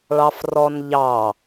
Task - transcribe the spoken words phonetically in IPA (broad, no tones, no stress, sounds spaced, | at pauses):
ɭ ɑ f r ɔ n ʎ ɑ